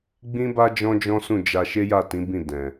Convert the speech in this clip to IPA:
ɡ͡b ĩ˦ b a˦ d͡ʒ ɔ̃˦ d͡ʒ ɔ̃˦ s ũ˦˨ d͡ʒ a˧ ʃ e˦ j a˦˨ t ĩ˨˦ b ĩ˦˨ d ɛ̃˨

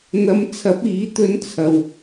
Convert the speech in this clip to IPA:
n̪ ɐ˨˧ m t͡sʰ ɐ˨˥ p̚ iː˨˥ t̪ ɵ˧ n t͡sʰ ɐ˨ w

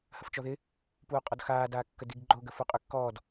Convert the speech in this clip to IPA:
h ɐ f t͡ʃ ɔ ð ɪ | p uː qʼ ɔ d x aː d aː kː ə d i ɡ ɡ͡ǃ o ɡ ə f u qʼ ʏ kː ɔː d

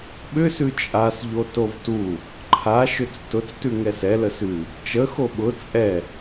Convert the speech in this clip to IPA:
ɓ ʏ s ʉ t͡ʃʼ a s ʎ o t o v t u | ǃʰ a ʃ ʏ t͡s t ʊ t͡s t ʉ ŋ ɛ s ɛ l ə s ʉ | t͡ʃ ə x o ɓ ʊ t͡sʼ ɛ

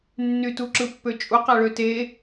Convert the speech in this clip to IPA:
nː y t u ǁ ɯ pː ø t͡ʃʼ u q æ ɭ ø t e

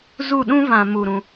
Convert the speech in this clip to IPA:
z u˦˨ ɗ ũ˦ v ã˧ m u˧ ɾ ũ˧

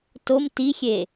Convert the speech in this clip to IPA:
t o m t i xʲ e

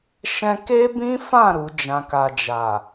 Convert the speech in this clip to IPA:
ʃ ɛ̃˧ k e˦ b ĩ˦ f ã˦˨ ɾ u˨˦ d͡ʒ ã˧ k a˧ d͡ʒ a˨

